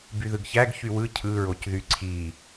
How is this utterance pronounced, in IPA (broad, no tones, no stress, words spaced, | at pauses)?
byðɯɡçæɡ çywɯ cʰɯɹoc ðyǀʰi